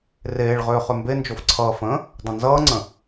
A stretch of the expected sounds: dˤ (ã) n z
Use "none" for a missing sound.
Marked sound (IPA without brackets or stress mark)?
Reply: ə̃